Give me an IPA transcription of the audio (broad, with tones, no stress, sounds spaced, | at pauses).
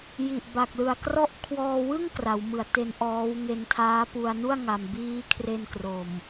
j i˨˩ ʔ b a˨˩ k̚ l ɯ˨˩ a̯ k r ɔ˦˥ ʔ kʰ w ɔː˧ w ɯ˥˩ ŋ k r a˩˦ w m ɯ˩˦ a̯ t e˧ n ʔ ɔː˦˥ w ŋ e˧ n tʰ aː˦˥ p u˧ a̯ n u˥˩ a̯ ŋ a˧ m b iː˦˥ kʰ r e˧ n k r o˨˩ m